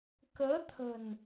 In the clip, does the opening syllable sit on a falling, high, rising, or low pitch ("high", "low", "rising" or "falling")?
rising